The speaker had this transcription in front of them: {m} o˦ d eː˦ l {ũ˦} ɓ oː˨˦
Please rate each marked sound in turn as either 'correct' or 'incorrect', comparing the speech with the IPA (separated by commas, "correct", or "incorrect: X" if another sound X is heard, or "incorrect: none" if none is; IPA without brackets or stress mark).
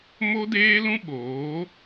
correct, correct